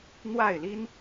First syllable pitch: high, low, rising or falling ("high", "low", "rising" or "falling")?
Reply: falling